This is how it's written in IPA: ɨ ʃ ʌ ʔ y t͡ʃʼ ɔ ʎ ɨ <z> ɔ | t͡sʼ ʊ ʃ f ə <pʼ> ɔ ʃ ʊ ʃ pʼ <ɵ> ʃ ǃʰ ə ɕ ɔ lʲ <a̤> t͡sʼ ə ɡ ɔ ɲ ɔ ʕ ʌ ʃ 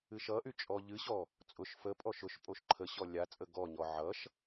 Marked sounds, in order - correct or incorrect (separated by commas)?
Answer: incorrect, correct, incorrect, incorrect